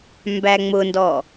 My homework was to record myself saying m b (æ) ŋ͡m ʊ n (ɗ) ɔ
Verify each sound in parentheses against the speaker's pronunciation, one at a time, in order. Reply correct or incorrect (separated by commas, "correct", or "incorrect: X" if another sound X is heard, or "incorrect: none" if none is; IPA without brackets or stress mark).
correct, incorrect: d